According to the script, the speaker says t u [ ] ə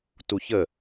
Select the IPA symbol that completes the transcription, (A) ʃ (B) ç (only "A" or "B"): B